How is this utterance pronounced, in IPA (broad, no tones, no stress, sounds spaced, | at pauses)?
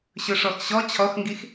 ɕ ɵ ʂ ɔ x ɕ ɔ t͡ɕʰ ɔ x ŋ ɡ i x